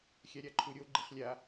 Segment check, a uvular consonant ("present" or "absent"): present